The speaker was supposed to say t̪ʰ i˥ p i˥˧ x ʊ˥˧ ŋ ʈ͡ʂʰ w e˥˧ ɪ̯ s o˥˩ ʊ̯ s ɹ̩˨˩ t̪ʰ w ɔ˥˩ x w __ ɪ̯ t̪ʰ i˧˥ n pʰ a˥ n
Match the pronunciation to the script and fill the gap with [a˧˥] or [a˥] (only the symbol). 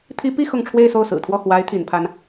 a˧˥